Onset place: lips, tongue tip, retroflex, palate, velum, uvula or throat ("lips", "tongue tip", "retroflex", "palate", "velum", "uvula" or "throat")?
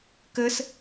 velum